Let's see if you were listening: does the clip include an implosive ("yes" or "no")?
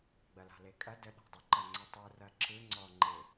yes